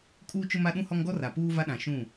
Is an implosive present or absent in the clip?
present